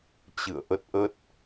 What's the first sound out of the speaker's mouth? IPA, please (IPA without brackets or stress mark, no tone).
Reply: t͡ɕ